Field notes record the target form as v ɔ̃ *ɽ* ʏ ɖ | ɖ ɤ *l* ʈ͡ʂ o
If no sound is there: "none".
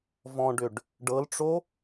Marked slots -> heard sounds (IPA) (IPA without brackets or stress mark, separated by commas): ɖ, l